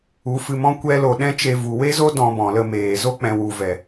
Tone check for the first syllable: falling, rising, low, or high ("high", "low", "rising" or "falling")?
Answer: rising